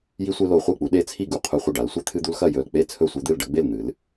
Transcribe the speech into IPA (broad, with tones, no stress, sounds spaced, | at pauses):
j i˦ sʷ e˦ l o˧˩ χʷ e˥˨ k͡p u˨˦ ɗ e˦ t͡sʰ i˥˨ ɡ u˧˩ qʰ u˧˩ χʷ ɐ˥˨ ɖ a˨˦ l sʷ e˦ t̪ʰ ɨ˦ d̪ u˦ l x ɐ˥˨ j ɵ˧˩ l k͡p e˥˨ t͡sʰ ɵ˥˨ sʷ e˦ d̪ ɨ˥˨ l ɖ ɐ˦ ɡ͡b e˥˨ l n̪ ɨ˨˦ l